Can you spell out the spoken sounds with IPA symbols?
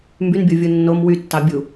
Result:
m b y n bʲ o vʲ u nː o m w y tː ɑ bʲ u

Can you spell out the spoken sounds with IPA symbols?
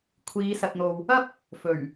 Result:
kʷʰ iː˨˧ s ɐ˨ t̚ n̪ o˨ w | ɐ˥ p̚ | f ɵ˨˩ ɥ

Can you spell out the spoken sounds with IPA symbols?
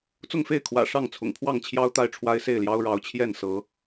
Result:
t͡s ʊ˥˨ ŋ f e˥˨ ɪ̯ kʰ w ä̰˨˩ ʂ ɑ˥˨ ŋ t͡sʰ ʊ̰˨˩ ŋ pʰ w ɑ˥˨ ŋ t͡ɕʰ j ɑ˦ ʊ̯ t̪ a˥˨ ɪ̯ ʈ͡ʂʰ w a˦ ɪ̯ s e˥˨ ɪ̯ l j ɑ˦ ʊ̯ ɻ ɑ˨˦ ʊ̯ t͡ɕʰ j ɛ˥˨ n s ɤ˨˦

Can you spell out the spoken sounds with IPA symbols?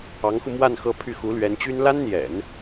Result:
ɑ˧˥ ŋ x u˧ m w a˥˧ n x ɤ˥˧ pʰ y˥˩ x u˧˥ l ɥ ɛ˧˥ n t͡ɕ y˥ n l a˥ n n̪ j ɛ̰˨˩˦ n

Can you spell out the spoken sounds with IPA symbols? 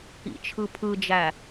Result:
ḭ t͡ʃʰ ɯ pʰ ɯ d͡ʒ æ

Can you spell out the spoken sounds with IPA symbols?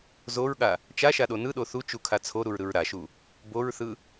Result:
z o ɹ ɠ a | t͡ʃ a ʃ a ɗ o n ɯ ɗ o θ u t͡ʃ u kʰ a t͡sʰ o ɾ u ɹ ɾ ɯ ɹ ɾ a ʃ u | b o ɹ θ ɯ

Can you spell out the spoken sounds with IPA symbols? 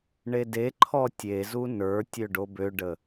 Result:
ɳ e d e ǃʰ ɔ tʲ e z u n ə˞ tʲ ø ɖ o b ø ɖ ə

